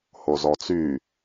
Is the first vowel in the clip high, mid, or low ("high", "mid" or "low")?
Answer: mid